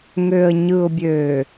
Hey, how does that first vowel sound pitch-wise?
low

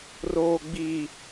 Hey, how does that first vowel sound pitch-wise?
low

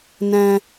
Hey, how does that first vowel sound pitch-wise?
low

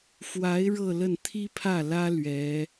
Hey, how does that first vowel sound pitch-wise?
rising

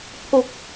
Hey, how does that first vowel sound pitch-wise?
high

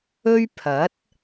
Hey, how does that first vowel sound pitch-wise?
high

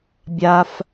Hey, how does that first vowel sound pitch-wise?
low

